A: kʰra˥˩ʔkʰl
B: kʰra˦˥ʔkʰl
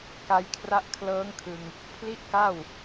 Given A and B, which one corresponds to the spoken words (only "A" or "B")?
B